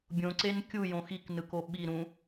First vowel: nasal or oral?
nasal